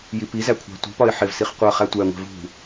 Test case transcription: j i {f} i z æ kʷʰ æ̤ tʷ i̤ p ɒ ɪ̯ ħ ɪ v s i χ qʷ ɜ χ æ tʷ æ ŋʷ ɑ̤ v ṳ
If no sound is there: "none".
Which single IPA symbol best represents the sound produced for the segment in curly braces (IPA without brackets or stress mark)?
p